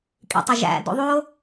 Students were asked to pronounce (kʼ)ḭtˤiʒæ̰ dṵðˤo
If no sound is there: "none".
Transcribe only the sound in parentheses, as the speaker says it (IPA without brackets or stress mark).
kʼ